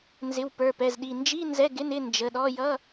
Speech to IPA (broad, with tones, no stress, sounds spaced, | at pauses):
n z ɪ˩˧˩ w p ə˞˩˧˩ p ɛ˩˧˩ z ɗ i˩˧˩ n d͡ʒ i˧˥˧ n z ɛ˧˥˧ ɡ ɪ˧˥˧ n ɪ˧˥˧ n d͡ʒ ə˩˧˩ ɗ ɔ˧˥˧ j ʌ˧˥˧